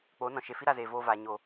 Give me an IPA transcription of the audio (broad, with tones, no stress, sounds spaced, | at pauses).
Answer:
k͡p oː˨˦ n ɔ̃˨ ʃ e˨ f i˦ ɾ a˧ z eː˨ v oː˧ v a˨ ɲ o˨